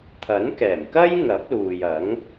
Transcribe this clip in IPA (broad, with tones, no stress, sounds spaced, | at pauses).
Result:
t̪ʰ ɐ˨˥ n k ɛː˨˩ m k ɐ˥ j ŋ ɐ˨˥ p̚ l uː˨ j ɐ˨˥ ŋ